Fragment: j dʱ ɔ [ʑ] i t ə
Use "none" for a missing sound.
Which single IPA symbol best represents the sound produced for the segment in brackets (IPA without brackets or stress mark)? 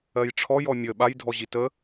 ʑ